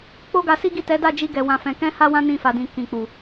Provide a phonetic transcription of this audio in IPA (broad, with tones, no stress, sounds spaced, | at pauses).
k͡p o˦ ɡ a˧ s i˦ ɡ i˦˨ t ɛ˨˦ d a˦˨ d͡ʒ i˧ ɡ ɛ˨ w ã˨ f ɛ̃˨ k ɛ̃˧ h a˧ w ã˦ n ĩ˦˨ f a˨ d ĩ˨ k ĩ˨ k͡p u˨